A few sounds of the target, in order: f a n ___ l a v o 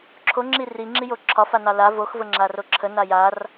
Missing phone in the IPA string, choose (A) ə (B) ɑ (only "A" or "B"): B